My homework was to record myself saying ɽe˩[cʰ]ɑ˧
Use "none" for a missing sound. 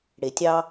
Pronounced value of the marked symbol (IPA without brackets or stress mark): tʲ